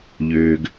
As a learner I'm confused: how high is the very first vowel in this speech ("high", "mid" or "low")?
mid